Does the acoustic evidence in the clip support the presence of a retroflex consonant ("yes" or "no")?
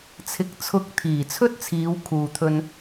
no